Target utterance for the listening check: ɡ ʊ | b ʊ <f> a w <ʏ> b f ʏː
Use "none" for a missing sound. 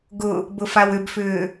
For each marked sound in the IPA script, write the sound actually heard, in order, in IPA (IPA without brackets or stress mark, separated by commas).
f, ʏ